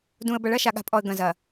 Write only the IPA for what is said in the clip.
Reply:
d ũ˨ ə̯ b ɐ˨ ɭ ɐ˦ ʃ a˨ ɠ a̤˨ pʼ ɔ˨ ə̯ ɡ ɐ̃˨ z ɐ˨

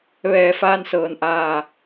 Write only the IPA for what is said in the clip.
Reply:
ʋ ɛː˧˩ f aː˧ n s ɤː˩ n ʔ aː˧˩

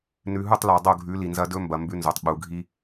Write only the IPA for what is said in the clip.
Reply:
n ʉ˨ ɦ u˦˨ tˤ l a˨ dˤ o˦˨ ɡʱ ʉ˨˦ l i˨ n z ɐ˦ d ɵ˦ m b ɐ˨ m b ʉ˦ n z o˨ tˤ ɓ u˨ ɡʱ i˦

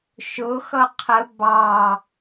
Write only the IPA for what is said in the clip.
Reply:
ʃ ʊ x ʌ qʰ ə b ɑ

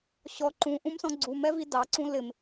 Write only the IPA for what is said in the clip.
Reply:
ɕ ɔ ǃ ũ ʔ ũ m s ɔ̃ ɡ͡ǀ u m ɛ v i d ɑ ǀ ũ l ɪ m

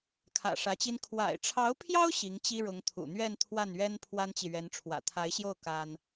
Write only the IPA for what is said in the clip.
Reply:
kʰ ä̰˨˩ ʂ ä˧˥ t͡ɕ i˥ n kʰ w a̰˨˩ ɪ̯ ʈ͡ʂʰ ɑ˧˥ ʊ̯ pʰ j ɑ˥ ʊ̯ ɕ i˧˥ ŋ t͡ɕ i˥ ɻ ʊ˧˥ ŋ t̪ʰ ṵ˨˩ n̪ ɥ ɛ˥˧ n t̪ʰ w a˥˩ n ɥ ɛ˥ n pʰ w a˥ n t͡ɕ i˨ ɥ ɛ˧˥ n ʈ͡ʂʰ w ä̰˨˩ t̪ʰ a˧˥ ɪ̯ ɕ j o˥˩ ʊ̯ k a˥ n

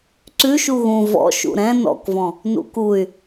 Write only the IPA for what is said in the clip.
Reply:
ǀ ʉ ʃ u ɣ ũ v ɔ̰ ʃ ṵ ɾ ɛ̃ n ɔ̰ k v ɔ̃ | n ṵ k u y̯

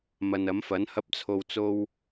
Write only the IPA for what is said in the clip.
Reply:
m ɐ˨ n ɐ˨˥ m f ɐ˨˥ n h ɐ˧ p̚ t͡sʰ o˨ w t͡s o˧ w

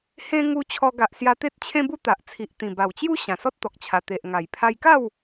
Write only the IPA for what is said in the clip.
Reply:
h ẽ˦ ŋ u˧ t͡ɕʰ ɔ˧ ɡ a˨ ʔ s j a˧ t̪ e˦ t̚ t͡ɕʰ ẽ˦ b u˦ t̪ a˨ ʔ t͡sʰ i˨ ʔ t̪ ĩ˨˩ b a˨˩ w t͡ɕ j u˦ ɕ ã˨˩ s ɔ˦ t̚ t̪ ɔ˨ k̚ t͡ɕʰ a˨˩ t̪ e˨ ʔ ŋ a˨˩ j pʰ a˧ j k a˥˧ w

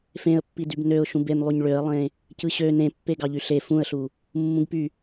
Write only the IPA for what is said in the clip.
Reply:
f ẽ ə̯ pː i d y b n ø ʊ̯ ʃ ũ b e n lˠ y ɲ ɭ ø ə̯ lˠ ẽ | c ɯ ɕ ø n ẽ pː e ɡ ɑ ʎ y ɬ e f ũ ə̯ ɬ u | mː ũ ɡ p y

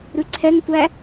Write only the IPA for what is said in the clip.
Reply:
ɾ ʉ ǀʰ ɛ ŋ tʷ æ

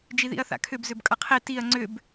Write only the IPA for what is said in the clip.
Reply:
d͡ʒ i ð ḭ ɐ̯ θ a̰ kʰ ʏ b z ʏ b kʼ ʌ qʰ i t i ɐ̯ ŋ͡ǀ ʏ b

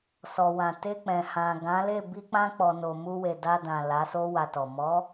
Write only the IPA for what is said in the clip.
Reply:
s ɔ˨ w ã˨ t e˧ k͡p ɛ̃˨ h ã˨ ɡ ã˨˦ l e˦˨ b i˧ k͡p ã˧ k͡p ɔ˨ n o˨ m u˧ w e˨ d a˧ d ã˨ l a˨˦ s o˦ w a˧ t ɔ˨ m ɔ˨˦

